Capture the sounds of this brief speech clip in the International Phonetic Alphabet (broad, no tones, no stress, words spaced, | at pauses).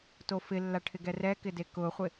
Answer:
tofɪlːa ʈʰɪɡɛrɛkɪ dekʊχʷɪ